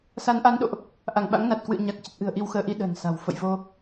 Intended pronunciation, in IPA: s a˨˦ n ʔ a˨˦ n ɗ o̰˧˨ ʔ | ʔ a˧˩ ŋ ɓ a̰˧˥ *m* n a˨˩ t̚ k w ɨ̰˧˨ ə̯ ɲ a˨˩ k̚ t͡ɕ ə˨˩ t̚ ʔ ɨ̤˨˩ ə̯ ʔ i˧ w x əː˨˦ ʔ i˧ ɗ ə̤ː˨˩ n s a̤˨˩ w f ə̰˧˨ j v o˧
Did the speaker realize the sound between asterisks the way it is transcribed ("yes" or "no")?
no